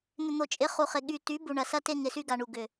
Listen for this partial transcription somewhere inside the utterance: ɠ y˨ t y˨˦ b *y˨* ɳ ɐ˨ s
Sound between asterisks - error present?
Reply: yes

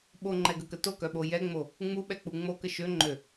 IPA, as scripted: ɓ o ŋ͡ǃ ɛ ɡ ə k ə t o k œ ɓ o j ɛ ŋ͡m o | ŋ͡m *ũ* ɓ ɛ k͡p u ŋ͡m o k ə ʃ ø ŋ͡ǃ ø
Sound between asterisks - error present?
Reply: yes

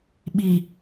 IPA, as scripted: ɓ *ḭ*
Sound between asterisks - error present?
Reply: yes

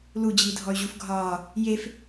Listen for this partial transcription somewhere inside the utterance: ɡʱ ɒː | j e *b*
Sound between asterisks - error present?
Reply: yes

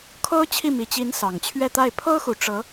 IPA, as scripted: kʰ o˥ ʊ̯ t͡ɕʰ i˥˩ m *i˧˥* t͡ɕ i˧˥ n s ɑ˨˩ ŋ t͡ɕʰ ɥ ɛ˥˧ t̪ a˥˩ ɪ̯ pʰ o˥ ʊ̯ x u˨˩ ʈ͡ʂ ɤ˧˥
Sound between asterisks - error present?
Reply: yes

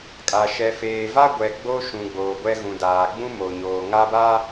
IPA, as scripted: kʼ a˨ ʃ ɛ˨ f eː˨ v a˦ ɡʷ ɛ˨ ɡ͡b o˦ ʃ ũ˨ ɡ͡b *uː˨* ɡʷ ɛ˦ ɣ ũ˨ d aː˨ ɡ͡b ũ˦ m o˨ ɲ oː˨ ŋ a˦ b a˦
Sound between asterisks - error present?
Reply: yes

